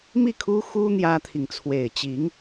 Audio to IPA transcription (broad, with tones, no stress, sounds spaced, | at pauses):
m i˥˩ kʰ u˥ x u˥ n̪ j ä˥ t̪ʰ i˨ ŋ t͡sʰ w e˨˩ ɪ̯ t͡ɕ i˧˥ ŋ